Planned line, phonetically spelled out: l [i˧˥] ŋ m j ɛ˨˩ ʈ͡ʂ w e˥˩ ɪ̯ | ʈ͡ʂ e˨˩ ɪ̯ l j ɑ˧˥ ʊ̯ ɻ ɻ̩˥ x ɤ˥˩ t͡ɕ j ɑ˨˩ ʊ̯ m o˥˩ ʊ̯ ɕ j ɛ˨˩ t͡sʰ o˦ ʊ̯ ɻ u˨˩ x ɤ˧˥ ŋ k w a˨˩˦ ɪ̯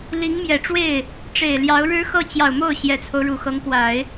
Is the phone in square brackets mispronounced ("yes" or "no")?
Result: no